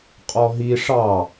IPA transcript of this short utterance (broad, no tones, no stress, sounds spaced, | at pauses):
qʼ ɔ ɦ i ʂ ɑ